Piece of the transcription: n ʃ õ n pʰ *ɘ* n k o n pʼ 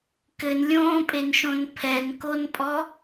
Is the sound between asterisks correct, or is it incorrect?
incorrect